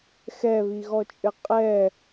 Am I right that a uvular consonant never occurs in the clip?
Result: no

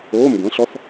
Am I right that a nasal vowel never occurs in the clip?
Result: no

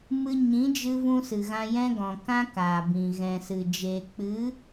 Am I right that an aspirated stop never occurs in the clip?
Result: yes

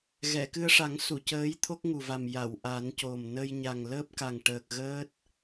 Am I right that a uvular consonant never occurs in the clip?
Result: yes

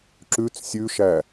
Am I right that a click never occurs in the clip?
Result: no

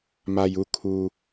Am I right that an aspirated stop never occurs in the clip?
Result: no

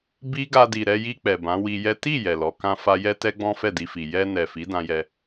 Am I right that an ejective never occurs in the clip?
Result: yes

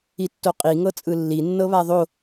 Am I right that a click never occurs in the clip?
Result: yes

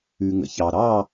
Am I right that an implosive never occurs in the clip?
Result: yes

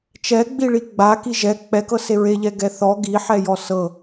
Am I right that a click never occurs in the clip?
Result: yes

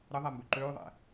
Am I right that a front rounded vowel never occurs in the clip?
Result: no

